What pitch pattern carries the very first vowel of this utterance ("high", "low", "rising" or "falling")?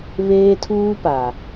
high